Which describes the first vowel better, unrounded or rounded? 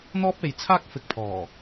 rounded